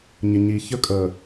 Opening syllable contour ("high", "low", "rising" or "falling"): low